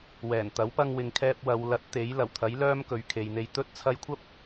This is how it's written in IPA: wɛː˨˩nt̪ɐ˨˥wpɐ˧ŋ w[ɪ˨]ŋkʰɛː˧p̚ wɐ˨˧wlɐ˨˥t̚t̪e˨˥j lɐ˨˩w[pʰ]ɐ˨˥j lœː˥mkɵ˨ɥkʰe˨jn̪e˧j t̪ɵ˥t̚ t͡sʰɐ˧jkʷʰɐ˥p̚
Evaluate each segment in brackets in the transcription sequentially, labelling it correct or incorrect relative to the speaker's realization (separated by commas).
correct, incorrect